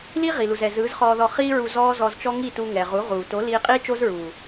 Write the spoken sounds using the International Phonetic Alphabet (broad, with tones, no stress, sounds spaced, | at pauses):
l iː˦ ʁ i˨ l u˨ z ɛ˨ z ɯː˨˦ z χ ɔː˧ ð ɔ˧ χ iː˦ ɹ u˧ z ɔː˦ z ɔ˧ z t͡ʃ ɔ˦ ŋ i˦˨ t u˧ ŋ ɛ˨ ʁ u˨˦ ʁ uː˨ t o˨˦ l iː˧ qʼ iː˦ t͡ʃ o˦ z ɹ uː˨